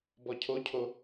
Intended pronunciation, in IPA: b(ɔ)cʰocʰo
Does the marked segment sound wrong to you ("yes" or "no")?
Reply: no